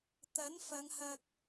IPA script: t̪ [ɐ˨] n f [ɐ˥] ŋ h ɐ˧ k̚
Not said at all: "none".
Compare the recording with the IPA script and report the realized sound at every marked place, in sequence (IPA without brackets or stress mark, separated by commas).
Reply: ɐ˨˥, ɐ˨˧